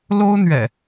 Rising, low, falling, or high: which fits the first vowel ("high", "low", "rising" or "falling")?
high